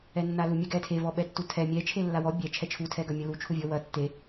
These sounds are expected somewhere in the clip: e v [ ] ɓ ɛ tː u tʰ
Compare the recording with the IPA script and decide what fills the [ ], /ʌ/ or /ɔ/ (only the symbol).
ɔ